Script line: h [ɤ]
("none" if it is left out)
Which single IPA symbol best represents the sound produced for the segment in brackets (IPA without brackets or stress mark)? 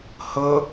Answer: ɤ